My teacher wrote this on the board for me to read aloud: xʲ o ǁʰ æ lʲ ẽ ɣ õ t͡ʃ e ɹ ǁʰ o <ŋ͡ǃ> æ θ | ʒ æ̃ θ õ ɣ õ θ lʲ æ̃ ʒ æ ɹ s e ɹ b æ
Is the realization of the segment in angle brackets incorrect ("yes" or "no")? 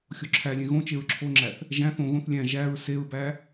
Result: yes